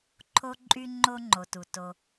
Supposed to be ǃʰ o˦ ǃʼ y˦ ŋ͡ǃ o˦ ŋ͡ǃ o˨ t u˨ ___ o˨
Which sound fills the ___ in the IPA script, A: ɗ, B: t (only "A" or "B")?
B